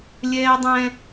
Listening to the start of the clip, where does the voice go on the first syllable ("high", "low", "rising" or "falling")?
high